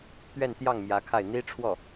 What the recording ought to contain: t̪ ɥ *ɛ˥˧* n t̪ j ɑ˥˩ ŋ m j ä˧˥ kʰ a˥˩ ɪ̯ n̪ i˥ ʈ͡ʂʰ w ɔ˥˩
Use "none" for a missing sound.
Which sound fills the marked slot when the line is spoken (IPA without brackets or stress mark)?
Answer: ɛ˥˧